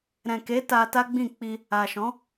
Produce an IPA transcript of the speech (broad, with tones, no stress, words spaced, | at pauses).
ɾɛ̃˨ke˨˦ ta˧ta˦ɡ͡bĩ˦˨ k͡pi˧ | a˨ʃɔ̃˨˦